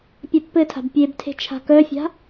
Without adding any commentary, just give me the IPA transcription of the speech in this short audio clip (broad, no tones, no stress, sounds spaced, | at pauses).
pʲ a pː ɘ tʰ a̤ b pʲ e b tʰ e̤ t͡ʃʰ a̤ k œ fʲ a̤